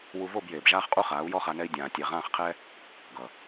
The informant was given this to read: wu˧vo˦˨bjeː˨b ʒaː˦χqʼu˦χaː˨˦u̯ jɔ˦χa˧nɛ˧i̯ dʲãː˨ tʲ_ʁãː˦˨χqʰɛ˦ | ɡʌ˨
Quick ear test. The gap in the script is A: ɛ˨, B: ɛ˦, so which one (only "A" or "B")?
A